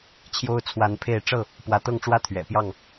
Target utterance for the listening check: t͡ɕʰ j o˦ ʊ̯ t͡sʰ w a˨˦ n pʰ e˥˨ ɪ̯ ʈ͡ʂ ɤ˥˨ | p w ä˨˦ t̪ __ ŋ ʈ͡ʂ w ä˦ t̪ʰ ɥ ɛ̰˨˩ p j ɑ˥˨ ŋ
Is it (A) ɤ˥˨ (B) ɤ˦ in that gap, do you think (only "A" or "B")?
A